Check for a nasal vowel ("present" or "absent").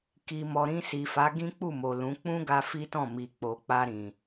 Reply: present